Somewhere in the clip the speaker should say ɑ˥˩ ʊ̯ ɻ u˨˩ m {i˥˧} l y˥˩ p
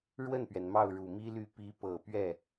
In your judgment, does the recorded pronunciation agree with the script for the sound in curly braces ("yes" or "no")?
no